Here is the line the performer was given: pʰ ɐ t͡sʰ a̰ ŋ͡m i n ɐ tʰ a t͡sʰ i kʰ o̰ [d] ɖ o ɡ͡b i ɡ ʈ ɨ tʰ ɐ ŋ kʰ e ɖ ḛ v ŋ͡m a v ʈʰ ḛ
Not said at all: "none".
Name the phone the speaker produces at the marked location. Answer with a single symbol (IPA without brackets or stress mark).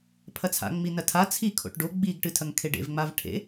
ʈ